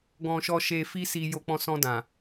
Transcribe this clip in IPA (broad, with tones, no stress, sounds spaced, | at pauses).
ɡ ɔ̃˧ ʃ ɔ˧ ʃ e˧ f i˦ s i˧ j o˧ k͡p ɔ̃˧ s ɔ̃˧ d ã˨